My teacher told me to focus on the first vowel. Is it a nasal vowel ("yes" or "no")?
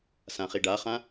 yes